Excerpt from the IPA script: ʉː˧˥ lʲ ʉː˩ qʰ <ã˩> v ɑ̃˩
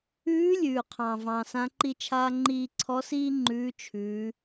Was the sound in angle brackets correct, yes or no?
no